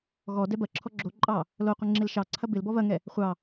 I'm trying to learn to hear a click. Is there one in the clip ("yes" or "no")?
yes